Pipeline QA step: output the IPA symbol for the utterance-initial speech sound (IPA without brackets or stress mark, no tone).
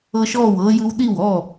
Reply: ɤ